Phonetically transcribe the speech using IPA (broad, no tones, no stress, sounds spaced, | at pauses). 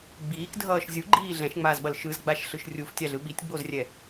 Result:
ɡ͡b iː k dʱ ʌː ʃ zʲ u ɡ͡ǃ iː ɮ ɛ̃ ʃ ŋ͡m aː z ɓ ʌ l ʃ ɯ z ɡ͡b a ʃ ɬ ɯ ʃ rʲ u f tʲ a ɮ ɯ ɓ i tʲ ɡ͡b o z rʲ ɛ